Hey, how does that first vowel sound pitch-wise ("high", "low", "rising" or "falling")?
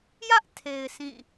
high